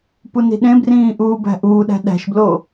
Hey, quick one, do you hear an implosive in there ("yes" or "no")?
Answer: yes